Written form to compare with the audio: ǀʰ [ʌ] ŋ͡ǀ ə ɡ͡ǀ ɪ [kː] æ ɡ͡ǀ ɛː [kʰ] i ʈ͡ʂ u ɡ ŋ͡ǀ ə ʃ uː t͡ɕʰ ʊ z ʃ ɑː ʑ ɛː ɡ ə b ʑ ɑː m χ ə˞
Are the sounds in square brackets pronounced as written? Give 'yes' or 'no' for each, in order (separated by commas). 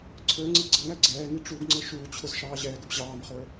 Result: no, no, no